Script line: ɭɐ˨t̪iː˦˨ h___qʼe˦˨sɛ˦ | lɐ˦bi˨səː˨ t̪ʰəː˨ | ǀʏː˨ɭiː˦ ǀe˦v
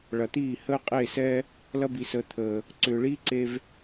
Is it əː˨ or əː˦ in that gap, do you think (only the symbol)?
əː˦